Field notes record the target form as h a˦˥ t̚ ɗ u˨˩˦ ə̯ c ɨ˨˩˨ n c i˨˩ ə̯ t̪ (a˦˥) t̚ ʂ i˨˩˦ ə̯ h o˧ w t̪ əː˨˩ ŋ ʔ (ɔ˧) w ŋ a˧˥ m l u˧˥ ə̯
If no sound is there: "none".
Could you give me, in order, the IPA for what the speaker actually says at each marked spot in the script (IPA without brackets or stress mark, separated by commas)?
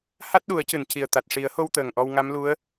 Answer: a˨˩, ɔ˧